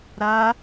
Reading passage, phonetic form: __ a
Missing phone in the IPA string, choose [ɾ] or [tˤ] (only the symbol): ɾ